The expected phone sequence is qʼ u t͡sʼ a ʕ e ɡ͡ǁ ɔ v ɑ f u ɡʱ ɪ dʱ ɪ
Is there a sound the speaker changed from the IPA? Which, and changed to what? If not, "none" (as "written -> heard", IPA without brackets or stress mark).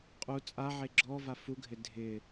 ɑ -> a